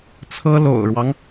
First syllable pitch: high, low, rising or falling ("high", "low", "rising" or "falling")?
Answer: high